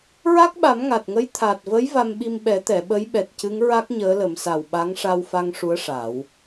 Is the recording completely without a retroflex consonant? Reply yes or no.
no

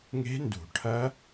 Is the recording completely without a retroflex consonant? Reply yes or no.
no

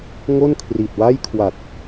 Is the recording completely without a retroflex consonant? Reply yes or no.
yes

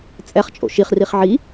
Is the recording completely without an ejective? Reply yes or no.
no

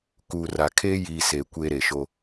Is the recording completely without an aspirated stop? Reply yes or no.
no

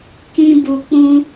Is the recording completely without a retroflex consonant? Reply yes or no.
yes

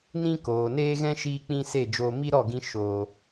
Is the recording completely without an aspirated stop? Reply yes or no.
yes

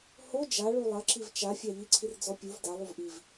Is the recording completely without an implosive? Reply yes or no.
yes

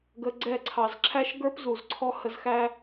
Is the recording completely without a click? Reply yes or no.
no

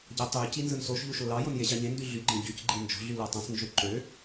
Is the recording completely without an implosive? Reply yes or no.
yes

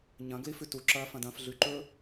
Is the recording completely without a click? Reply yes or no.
no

